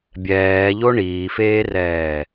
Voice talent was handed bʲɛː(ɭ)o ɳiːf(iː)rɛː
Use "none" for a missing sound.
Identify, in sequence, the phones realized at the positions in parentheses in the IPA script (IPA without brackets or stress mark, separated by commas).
ʎ, eː